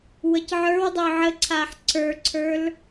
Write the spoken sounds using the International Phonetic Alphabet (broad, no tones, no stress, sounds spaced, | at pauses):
w ə c ʕ ə˞ w dˤ œ ʕ ə ǀʰ a ħ ǀ ə˞ ǀʰ ə˞ l